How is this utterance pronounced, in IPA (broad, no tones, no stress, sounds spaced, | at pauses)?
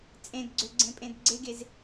t͡sʼ ẽ d ɡ͡ǀ ø ɡ͡ǀ ẽ pʼ ẽ d ɡ͡ǀ e ɡ e z